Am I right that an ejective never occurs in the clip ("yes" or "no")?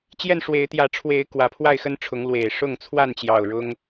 yes